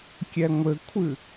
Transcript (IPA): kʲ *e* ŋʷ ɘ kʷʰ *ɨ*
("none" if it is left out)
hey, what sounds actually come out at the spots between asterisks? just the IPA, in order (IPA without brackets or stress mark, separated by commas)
ɛ, ɨ